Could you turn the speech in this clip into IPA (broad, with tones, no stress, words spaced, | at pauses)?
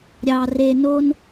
ɾʲɑ˨re˨ no˦n